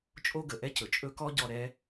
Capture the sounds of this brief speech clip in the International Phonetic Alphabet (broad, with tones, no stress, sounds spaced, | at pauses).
t͡ʃʼ o˦ ɡ ə˩ ʔ ɛ˥ c ɵ˩ t͡ʃʼ ɵ˦ k ɔ˥ ɟ ɔ˦ ɾ ɛ˥